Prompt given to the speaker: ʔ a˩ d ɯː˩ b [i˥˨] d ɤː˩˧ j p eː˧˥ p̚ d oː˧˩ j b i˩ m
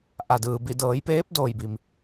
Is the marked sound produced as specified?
no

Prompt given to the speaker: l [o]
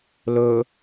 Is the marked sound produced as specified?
no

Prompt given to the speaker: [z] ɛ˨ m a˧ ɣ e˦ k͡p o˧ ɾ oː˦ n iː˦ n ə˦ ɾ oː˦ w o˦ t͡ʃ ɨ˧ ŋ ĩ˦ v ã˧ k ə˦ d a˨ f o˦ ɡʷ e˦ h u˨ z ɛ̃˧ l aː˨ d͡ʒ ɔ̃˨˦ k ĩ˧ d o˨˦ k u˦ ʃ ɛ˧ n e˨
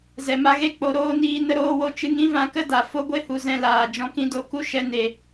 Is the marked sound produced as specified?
yes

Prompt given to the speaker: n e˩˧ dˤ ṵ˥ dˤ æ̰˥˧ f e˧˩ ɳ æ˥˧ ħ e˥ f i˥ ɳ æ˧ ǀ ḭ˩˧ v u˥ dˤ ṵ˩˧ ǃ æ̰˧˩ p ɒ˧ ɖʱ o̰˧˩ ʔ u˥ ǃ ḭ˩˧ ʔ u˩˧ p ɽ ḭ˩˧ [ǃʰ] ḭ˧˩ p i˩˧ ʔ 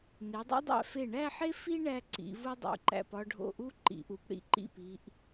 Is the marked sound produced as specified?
no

